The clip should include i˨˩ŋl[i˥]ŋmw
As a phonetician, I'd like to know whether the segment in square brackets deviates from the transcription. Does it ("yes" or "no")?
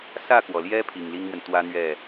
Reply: no